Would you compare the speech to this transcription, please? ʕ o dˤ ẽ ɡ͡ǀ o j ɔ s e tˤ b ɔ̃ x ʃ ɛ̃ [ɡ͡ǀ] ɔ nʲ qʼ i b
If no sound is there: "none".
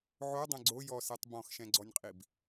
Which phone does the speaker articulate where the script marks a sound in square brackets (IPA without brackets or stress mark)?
ɡ͡ǀ